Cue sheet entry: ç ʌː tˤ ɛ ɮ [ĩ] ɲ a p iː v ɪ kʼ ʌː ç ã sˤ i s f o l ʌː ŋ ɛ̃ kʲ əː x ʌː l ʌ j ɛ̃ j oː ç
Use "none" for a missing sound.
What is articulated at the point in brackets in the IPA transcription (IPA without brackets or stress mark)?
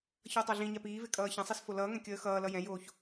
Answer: ĩ